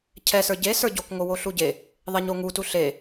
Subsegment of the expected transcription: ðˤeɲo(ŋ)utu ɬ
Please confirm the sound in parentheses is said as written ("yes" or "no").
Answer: yes